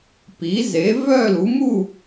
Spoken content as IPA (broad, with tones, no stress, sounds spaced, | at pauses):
p i˩˥ z e˩˥ v œ˥˨ l u˩˥ m u˥˨